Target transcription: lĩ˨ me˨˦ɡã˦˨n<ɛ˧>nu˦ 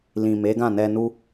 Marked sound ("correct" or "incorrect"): correct